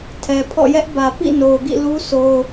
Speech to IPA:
tʰ ɛ˨ pʰ ɔ̰˦˨ j ɛ˦ ʔ b ä˨ p ḭ˦˨ n o˨ ʊ̯ ɡ ḭ˦˨ l u˦ s o˦ ʊ̯

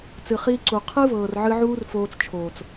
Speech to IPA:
t͡s ɨ˨ χ iː˧ ǀ u˨ qʰ ɨ˦ v ɤː˨ r ʕ ɨ˧ ʕ uː˦ r f oː˧ t͡s t͡ʃʰ oː˨ t͡s

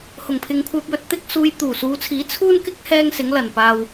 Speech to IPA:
h ʊ˨˩ ŋ pʰ ɪ˨ ŋ kʷʰ œː˧ p̚ j ɵ˧ t̚ t̪ ɪ˥ k̚ s uː˧ j t̪ uː˨˩ s uː˨˧ t͡sʰ iː˨˥ t͡sʰ uː˥ n k ɪ˥ k̚ h ɛː˥ ŋ s ɪ˨˥ ŋ l ɐ˨˩ n p aː˨ w

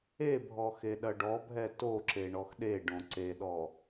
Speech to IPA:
e bʱ ɔ x e ɗ ɐ ɖ ɔ bʱ ɛ t o ǁ e ɳ ɔ x ɗ e ɖ õ ǀ e ɗ ɔ

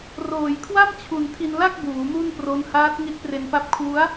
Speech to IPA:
r oː˩˦ j kʰ w a˥˩ m t͡ɕʰ u˨˩ n tʰ i˧ n l a˥˩ k̚ b uː˩˦ m u˥˩ n p r o˦˥ n h aː˦˥ t̚ ŋ i˦˥ t̚ p r e˧ n p a˦˥ p̚ kʰ w u˦˥ a̯

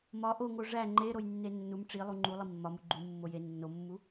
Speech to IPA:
m ɒ ʔ o ŋ o ʐ æ ŋ͡ǃ e ɾ o j nː e nː u m ʈ͡ʂ i lˠ u ŋ͡ǃ u lˠ i mː ɒ m u ɡ͡ǃ u mː o j e nː o mː u

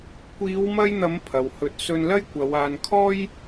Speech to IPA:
kʷ iː˨˧ w m ɐ˧ j n̪ ɐ˨˧ m pʰ ɐ˨ w h ɵ˧ t̚ s ɵ˧ n l ɐ˥ j kʷ ɐ˨˧ w aː˨ n kʰ ɔː˥ j

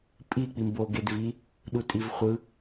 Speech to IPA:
pʼ i k͡p i m b o ɡ e d v i | ɗ u tʼ i v χʷ ɯ

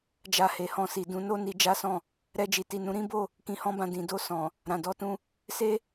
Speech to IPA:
d͡ʒ a˧ h e˨ h ɔ̃˧ s i˨ d ũ˨˦ n o˦ n i˧ d͡ʒ a˦ s ɔ̃˦˨ | ɾ ɛ˧ d͡ʒ i˨ t i˨ n ũ˨˦ ɾ ĩ˦ b o˦˨ | k ĩ˧ h ɔ̃˦ b ã˧ d ĩ˨ d o˧ s ɔ̃˨ | ɾ ã˨ d ɔ˨˦ t ũ˧ | s e˦

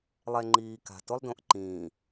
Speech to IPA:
lˠ ɛ ŋ͡ǃ iː k a̤ t o lˠ d õ ʔ ǃ ĩː

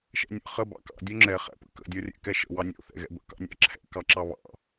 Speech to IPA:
ʃ ɛ̰ nʲ ə̰ χ ə b ɑ̰ k ɑ̰ dʲ o ŋ͡ǁ ɛ χ ɛ̰ p ə̰ k ə̰ dʲ ɔ rʲ ɛ̰ k ɛ ʃ ə̰ w ɑ nʲ o̰ θ ɛ̰ ɣ ɛ̰ b ə̰ k ɑ̰ nʲ ɑ̰ ǁʰ ɛ̰ k ɑ ǁ ɑ β ɑ̰

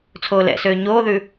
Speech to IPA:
t͡sʰ oː l ɛ̰ s øː ɲ oː ð ʉ

